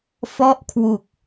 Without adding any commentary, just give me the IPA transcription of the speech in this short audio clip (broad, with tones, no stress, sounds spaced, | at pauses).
f ɔ˥˩ ʔ kʰ w u˨˩ k̚